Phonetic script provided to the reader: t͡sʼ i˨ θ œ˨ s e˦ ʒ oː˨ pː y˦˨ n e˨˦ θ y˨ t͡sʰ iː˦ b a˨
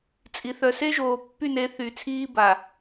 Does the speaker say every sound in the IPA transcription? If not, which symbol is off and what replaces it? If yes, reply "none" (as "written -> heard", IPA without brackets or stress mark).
none